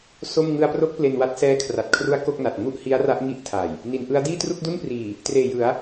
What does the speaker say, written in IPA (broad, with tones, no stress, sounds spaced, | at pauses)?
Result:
s o˥˩ m ŋ ɯ˧ a̯ p r o˦˥ k̚ p l e˧ n w a˦˥ t̚ s ɛː˦˥ kʰ r a˨˩ t̚ kʰ r u˦˥ a̯ k o˥˩ k̚ n a˨˩ t̚ ŋ u˥˩ ʔ h i˦˥ a̯ r a˦˥ ʔ ŋ i˦˥ ʔ tʰ a˨˩ j | n i˩˦ n ʔ ɯ˦˥ a̯ d iː˥˩ t r u˥˩ k̚ d u˥˩ n p r iː˨˩ | t r eː˨˩ j ɯ˩˦ a̯